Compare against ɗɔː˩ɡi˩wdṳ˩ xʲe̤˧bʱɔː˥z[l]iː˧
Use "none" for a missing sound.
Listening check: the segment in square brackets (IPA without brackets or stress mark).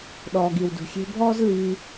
l